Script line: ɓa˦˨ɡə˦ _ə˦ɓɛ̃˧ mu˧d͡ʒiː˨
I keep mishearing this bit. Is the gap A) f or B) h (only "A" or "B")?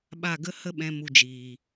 B